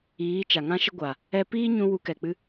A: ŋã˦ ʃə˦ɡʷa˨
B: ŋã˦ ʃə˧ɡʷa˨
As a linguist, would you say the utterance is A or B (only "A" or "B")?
B